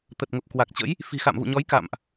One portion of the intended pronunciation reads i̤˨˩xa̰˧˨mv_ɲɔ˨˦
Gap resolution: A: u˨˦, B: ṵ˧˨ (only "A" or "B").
B